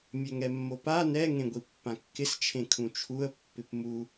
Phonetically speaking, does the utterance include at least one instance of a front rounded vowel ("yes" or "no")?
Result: yes